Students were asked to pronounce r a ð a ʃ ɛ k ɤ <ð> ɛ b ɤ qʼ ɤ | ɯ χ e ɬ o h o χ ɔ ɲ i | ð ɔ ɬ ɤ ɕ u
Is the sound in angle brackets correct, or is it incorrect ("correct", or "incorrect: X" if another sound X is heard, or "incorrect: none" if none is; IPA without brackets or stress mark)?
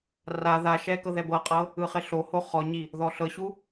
correct